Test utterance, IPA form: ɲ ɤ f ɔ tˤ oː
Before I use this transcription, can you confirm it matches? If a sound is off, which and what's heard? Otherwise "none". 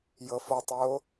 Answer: ɲ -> j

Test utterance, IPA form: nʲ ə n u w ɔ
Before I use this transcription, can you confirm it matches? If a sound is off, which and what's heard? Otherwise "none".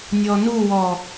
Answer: ə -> ɔ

